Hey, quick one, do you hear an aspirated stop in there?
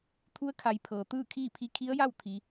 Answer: yes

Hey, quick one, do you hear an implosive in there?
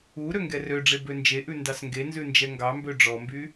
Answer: no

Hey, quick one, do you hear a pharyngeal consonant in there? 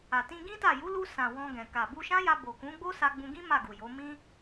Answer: no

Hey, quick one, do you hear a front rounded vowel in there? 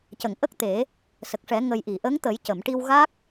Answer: no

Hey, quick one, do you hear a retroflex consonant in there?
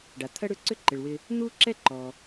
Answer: yes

